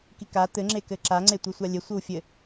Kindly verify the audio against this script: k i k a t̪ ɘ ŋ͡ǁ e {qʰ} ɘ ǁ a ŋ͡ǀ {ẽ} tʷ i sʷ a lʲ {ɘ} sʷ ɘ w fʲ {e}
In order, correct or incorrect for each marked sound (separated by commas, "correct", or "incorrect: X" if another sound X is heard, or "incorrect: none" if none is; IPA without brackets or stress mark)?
incorrect: k, incorrect: e, correct, incorrect: ɘ